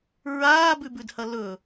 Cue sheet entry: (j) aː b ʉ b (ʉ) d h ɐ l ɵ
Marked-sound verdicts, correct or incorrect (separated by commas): incorrect, correct